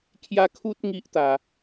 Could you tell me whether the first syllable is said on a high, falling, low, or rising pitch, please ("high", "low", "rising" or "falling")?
high